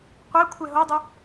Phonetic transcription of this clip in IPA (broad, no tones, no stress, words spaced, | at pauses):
qʷɛ kʷʰɛɦodˤø